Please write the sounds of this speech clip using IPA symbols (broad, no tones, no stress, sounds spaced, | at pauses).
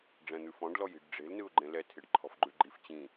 ɖ͡ʐ ɛ̃ n̪ ʉ f ɔ̃ ɖ l ɔ j i̤ ɖ ɖ͡ʐ e̤ l n ɯ ʊ̯ ɡ͡ǃ ẽ l ɛ tʰ e ɖ ǃʰ ɔ̤ f ɡ͡ǃ ʉ ɡ͡ǃ i f t͡ɕ ĩ